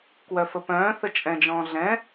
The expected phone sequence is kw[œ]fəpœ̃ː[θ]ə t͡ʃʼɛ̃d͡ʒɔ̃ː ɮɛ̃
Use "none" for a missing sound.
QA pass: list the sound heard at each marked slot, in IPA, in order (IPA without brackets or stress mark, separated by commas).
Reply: œ, θ